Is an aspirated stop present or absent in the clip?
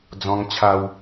present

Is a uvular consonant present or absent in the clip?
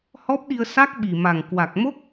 absent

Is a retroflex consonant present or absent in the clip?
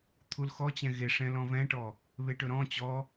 present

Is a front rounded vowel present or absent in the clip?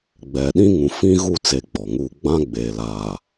absent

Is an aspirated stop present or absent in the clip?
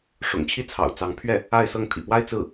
present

